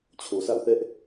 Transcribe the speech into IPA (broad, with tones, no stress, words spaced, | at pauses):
t͡ɕʰo˨sʰa̰˦˨ʊ̯θɛ˦ʔ